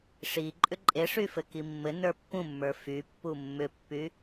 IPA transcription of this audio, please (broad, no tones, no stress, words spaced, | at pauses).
ʂi ǃʼʏǃʼeʂy fɘkimːɘnə˞ pːũmːə˞ fypːu mːʏpːy